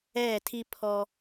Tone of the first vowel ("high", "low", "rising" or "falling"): falling